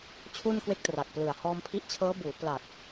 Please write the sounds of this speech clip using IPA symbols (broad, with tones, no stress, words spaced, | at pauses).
t͡ɕʰu˥˩nkwe˥˩k̚ tra˨˩k̚plɯ˨˩a̯ hɔː˧mpʰi˦˥ʔt͡ɕʰɤː˦˥ buː˩˦ pla˨˩k̚